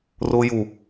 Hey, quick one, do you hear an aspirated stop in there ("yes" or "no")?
no